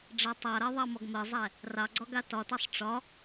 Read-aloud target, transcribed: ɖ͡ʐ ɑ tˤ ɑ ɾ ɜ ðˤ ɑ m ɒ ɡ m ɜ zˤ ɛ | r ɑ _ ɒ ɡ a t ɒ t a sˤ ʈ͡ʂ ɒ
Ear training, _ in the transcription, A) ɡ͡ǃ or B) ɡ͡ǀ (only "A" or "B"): B